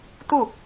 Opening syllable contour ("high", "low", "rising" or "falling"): falling